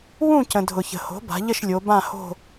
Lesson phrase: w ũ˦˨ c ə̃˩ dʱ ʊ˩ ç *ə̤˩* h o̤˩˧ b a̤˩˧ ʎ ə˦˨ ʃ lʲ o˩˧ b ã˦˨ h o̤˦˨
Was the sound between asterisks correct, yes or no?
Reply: yes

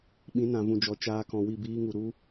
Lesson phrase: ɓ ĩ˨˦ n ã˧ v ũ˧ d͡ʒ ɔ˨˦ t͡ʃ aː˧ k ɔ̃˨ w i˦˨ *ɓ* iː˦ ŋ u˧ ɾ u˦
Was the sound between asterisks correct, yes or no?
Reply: no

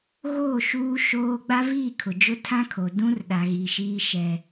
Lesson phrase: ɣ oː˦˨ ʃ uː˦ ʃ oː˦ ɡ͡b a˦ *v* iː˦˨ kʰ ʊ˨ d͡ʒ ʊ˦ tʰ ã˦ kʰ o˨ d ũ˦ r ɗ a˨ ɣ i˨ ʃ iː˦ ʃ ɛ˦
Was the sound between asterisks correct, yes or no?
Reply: yes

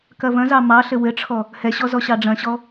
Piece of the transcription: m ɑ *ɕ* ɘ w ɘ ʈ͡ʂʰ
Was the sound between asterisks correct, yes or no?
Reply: no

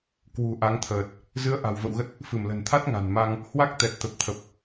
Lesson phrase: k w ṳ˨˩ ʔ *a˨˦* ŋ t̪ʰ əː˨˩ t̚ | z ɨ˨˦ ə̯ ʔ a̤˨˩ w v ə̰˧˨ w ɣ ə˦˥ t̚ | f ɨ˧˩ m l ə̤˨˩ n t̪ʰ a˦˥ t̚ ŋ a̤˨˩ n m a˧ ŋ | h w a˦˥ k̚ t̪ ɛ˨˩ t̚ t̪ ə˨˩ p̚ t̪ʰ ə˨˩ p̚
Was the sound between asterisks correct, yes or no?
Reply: yes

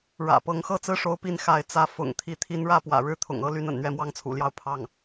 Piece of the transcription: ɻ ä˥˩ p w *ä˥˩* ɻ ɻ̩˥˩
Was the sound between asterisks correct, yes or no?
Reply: no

